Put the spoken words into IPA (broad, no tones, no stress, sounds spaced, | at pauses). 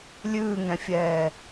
lʲ ʉː ŋ ɛ̃ fʲ ɛː